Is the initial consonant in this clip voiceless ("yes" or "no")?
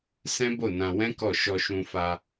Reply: yes